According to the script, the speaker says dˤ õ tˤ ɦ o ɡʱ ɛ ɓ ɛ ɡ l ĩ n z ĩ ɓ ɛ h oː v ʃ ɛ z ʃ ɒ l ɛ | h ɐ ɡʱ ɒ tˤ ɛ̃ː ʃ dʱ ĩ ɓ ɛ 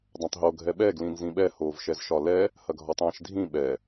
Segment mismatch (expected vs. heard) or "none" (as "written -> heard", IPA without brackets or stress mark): none